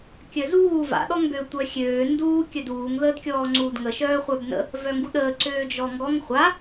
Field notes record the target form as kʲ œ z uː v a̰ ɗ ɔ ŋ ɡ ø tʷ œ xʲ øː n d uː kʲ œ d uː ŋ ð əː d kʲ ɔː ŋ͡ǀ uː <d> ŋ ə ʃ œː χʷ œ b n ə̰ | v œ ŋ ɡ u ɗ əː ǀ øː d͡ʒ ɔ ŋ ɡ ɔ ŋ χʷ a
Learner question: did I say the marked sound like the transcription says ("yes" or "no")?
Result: yes